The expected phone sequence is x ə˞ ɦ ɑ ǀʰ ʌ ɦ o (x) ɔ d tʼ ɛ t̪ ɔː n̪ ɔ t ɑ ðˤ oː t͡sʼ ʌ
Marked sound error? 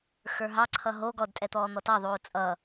yes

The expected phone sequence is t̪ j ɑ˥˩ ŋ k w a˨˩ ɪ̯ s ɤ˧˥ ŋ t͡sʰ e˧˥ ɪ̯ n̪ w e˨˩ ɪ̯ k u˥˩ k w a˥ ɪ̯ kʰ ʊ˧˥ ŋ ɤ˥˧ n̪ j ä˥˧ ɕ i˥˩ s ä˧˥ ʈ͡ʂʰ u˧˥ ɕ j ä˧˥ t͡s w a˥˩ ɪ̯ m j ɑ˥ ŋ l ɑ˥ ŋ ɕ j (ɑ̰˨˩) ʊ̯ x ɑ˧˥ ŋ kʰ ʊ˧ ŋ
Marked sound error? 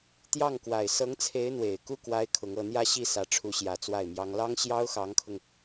yes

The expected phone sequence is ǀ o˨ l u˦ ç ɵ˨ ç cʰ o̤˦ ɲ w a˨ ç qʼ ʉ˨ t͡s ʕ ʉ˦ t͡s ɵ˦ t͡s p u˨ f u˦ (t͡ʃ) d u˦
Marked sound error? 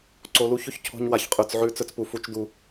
no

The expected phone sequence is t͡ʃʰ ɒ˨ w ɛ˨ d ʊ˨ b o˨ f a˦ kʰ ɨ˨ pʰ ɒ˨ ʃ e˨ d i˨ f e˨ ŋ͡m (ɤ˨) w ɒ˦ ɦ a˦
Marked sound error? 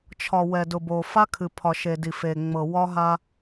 no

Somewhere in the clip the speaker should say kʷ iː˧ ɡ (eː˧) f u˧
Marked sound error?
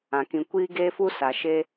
no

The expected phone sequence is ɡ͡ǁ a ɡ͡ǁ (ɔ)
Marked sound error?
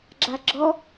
no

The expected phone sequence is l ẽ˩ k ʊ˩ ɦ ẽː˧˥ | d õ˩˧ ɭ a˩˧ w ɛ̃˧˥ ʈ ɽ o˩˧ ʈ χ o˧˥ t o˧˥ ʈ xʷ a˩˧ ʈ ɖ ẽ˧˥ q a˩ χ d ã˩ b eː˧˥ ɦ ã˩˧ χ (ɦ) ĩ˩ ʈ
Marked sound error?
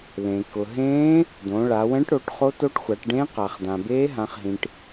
no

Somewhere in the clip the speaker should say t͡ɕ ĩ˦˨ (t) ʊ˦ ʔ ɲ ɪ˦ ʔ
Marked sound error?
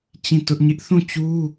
no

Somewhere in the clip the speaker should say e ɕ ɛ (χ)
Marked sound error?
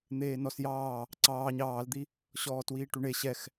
yes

